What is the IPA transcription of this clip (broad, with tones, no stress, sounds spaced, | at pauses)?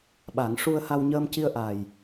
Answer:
ɓ a˨˩˦ ŋ ʂ u˧ ə̯ h a˧ w ɲ əː˧ m c i˧ ə̯ ʔ a˨˩ j